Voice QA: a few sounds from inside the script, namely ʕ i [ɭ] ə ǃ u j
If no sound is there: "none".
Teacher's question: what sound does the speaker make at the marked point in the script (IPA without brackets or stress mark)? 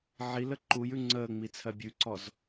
l